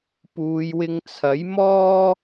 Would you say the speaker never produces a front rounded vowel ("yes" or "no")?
yes